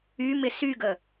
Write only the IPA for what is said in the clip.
ymɪ syɡə

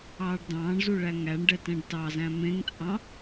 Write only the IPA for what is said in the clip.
ɑːɖdɑ̃ːɳzu ɭæŋæɳɖɛ tɛ̃ɖtɑzæ̃ mẽŋt͡sʼɑ̃

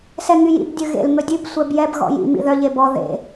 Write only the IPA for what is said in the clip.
sɛŋyjḭb dʲɵɣḛl ŋɵdʲʉb sʷɛbjɛb ɣɔ̰jḭ mḭðœ ʎebɔ ðḛ

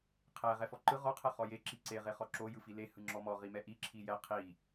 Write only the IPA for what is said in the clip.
qʰɛ ʁɛfɔǃɯ ʁɔ qʰɛχɔje ǁiǀe ʁeχɔǁo jɯfile hɯŋ͡ǁɔmɔ ʁimɛʔi ǁʰijɛ qʰi

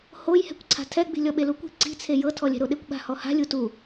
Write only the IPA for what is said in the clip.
hojhɛ̤kʷǀʰa̤ tʰɛɡ͡bi̤ lʲɔɓelukʷi̤ ǀi̤t͡sʰe jɤtʰɔlʲɛ̤ɾo ɗekʷɓa̤hɔha̤ lʲutu

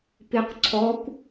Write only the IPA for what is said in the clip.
pɪq ǀʰɔkʷ

